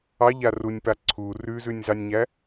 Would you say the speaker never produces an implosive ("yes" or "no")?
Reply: yes